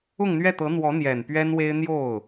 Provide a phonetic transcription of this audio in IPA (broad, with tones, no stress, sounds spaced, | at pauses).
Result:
ʊ˥˧ ŋ n̪ ɥ ɛ˥˩ t̪ ɤ˧˥ n̪ w ɔ˧˥ n̪ j ɛ˨˩ n p ɥ ɛ˥ n w e˥ ɪ̯ n̪ j o˥˩ ʊ̯